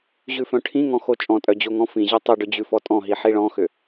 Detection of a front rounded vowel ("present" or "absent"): present